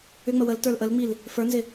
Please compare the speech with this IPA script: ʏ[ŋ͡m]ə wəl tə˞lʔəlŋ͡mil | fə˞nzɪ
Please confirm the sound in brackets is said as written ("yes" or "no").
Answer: yes